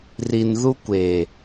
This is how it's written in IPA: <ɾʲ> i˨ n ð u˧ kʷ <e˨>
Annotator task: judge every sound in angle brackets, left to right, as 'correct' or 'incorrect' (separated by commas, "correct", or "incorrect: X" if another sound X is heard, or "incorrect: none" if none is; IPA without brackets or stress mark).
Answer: incorrect: r, correct